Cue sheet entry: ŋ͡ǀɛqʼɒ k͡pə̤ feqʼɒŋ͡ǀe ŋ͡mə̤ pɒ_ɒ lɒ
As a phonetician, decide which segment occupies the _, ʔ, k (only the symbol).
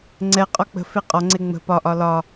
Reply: ʔ